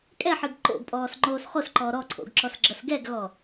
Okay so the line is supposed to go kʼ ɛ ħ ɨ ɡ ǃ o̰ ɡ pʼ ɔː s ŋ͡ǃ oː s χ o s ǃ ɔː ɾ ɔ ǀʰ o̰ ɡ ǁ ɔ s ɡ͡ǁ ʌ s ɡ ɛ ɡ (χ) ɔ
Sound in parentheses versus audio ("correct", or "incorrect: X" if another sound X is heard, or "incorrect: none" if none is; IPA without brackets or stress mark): incorrect: ɣ